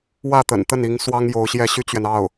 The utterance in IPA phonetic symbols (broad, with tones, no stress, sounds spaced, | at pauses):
w ä˥˩ t̪ ə̰˨˩ n t̪ ə˥˩ n i˧˥ ŋ s w ɑ˥ ŋ j o˧˥ ʊ̯ ɕ j ɛ˥˩ ɕ y˥ t͡ɕ ɥ ɛ˨ n ɑ˥˩ ʊ̯